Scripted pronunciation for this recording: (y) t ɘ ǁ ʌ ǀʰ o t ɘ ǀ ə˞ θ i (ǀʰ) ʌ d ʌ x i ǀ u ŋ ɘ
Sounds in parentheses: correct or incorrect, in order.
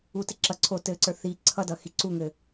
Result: incorrect, correct

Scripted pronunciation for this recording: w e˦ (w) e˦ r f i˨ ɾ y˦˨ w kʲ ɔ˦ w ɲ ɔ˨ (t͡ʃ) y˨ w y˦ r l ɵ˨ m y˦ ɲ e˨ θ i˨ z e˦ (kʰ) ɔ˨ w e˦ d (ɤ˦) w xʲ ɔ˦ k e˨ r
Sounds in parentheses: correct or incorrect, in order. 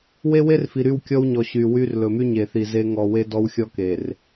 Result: correct, incorrect, incorrect, incorrect

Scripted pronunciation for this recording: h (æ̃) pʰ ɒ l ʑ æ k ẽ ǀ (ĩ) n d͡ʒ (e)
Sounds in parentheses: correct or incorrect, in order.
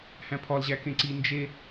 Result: correct, incorrect, correct

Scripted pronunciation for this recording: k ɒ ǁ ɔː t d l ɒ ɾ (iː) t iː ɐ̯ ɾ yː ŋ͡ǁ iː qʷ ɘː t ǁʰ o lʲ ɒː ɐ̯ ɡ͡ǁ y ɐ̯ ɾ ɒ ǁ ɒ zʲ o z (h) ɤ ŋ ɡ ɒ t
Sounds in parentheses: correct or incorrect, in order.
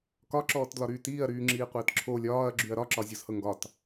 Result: incorrect, correct

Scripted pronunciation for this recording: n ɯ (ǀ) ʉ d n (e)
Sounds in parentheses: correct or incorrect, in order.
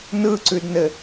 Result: correct, incorrect

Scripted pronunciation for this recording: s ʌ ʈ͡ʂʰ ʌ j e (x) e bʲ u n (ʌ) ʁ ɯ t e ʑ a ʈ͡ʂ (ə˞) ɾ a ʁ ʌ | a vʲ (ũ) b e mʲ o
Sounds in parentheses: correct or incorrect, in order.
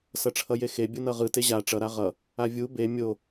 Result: correct, correct, incorrect, incorrect

